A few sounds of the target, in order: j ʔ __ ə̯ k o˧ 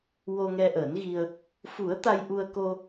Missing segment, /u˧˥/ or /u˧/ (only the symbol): u˧